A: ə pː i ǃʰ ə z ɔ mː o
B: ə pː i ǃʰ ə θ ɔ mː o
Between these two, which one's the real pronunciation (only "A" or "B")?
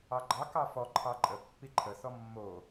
B